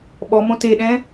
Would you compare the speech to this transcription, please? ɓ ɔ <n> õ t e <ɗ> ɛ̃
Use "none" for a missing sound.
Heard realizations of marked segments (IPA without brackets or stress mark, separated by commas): m, ɗ